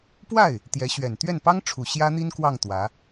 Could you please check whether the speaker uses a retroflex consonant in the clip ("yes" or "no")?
yes